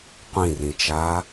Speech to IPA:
qʷĩrĩt͡ʃaː

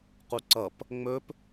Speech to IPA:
quǀʌp | ŋ͡mɵp

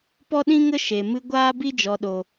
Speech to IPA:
pɔ˦ɗĩ˦ŋə˦ ʃe˨mɨ˧ ɡʷaː˦bi˦d͡ʒɔ˨ɗo˨

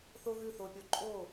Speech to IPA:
θo˥ɣʉ˥˩θo˧pʲo˧ ǃʼo˥˩

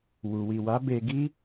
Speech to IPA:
wu˨wi˨wa˨˦ be˧ɡi˦

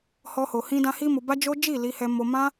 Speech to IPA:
hɔ˦ ho˧hĩ˦dã˦ hi˦mo˧ba˦d͡ʒo˦ d͡ʒi˦˨li˧hɛ˧ mo˧ mã˦

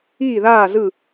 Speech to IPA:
iː˦˨ðaː˦˨zɯ˦˨

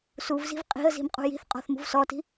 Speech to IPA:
suvzi̤v qʼi̤ə̯zi̤m qʼṳji̤θqʼɔ̤θ mṳvsɔti̤

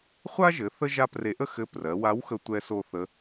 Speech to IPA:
χʷa˥ʒɘ˩˧ θə˥ ʒa˥pre˧˥ ʔə˥xɘ˧˥ prɜ˩˧wa˧˥wxə˧ tʷɛ˧so˧ θə˧˥

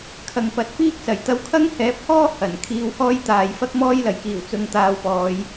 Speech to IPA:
kʰɐ˨ŋpɐ˨˥t̚piː˥k̚ sɐ˨˩j t̪ɐ˧wkʰɐ˥ŋhɛː˨˥p̚hɔː˥ hɐ˨˩n kʰiː˧whɔː˥jt̪aː˨j fɐ˥k̚mɔː˥jlɐ˨˩jkiː˨˩w t͡sʊ˧ŋt̪aː˧wpɔː˨˧j

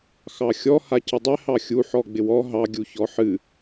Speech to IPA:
xɑxʲɔ hacɪdˤɪ hɑxʲu ħɔɡ͡bɪwɔ ɦɑ ɡʲuçɔħɨ

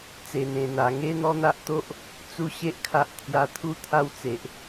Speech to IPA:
t͡se˨˩n̪ẽ˨˩n̪a˨˩ ŋe˦n̪ɔ˦n̪a˦ʔt̪o˦ʔ | t͡su˥˧ɕe˦ʔkʰa˦ʔ t̪ʰja˧t̪ʰu˦t̪ʰa˦w t͡se˨ʔ

